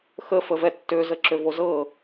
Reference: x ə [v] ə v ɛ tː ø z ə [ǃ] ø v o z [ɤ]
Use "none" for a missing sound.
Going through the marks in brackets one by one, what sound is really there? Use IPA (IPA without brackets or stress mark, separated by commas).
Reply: f, ǁ, ɤ